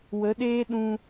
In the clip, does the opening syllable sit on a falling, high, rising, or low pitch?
rising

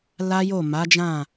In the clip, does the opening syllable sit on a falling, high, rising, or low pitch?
high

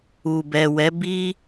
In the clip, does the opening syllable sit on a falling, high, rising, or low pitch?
low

